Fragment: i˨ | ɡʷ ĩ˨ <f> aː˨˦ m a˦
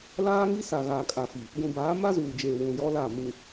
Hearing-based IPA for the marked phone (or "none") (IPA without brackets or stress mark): b